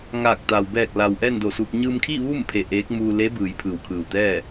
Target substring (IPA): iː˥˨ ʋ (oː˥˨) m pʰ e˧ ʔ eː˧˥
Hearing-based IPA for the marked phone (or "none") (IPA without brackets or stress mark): uː˥˨